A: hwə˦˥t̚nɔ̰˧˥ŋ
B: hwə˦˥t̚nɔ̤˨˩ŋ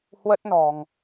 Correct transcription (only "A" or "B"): B